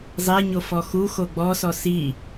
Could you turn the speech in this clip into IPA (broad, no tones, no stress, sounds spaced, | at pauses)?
zˤ e ɲ o f ɔ x u x o ɡ͡b ɔ s ɔ s i